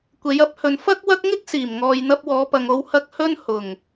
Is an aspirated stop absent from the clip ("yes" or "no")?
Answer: yes